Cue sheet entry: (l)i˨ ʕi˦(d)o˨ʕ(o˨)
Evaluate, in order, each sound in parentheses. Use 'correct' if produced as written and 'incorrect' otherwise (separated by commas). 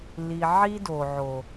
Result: correct, correct, correct